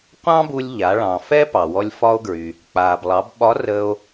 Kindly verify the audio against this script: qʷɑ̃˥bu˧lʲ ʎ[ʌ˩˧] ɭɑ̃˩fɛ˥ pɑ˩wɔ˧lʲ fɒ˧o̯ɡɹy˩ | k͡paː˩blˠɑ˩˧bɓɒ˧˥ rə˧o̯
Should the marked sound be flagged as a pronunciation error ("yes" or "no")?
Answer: yes